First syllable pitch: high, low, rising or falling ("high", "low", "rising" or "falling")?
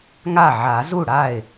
falling